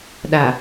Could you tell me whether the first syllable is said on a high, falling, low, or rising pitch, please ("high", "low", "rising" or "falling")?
low